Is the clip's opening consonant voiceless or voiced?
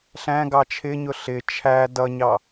voiceless